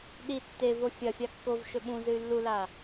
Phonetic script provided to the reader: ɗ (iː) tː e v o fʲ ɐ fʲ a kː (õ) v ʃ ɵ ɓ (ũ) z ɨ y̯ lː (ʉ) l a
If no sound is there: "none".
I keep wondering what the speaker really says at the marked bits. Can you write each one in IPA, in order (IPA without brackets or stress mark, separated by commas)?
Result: i, o, ũ, u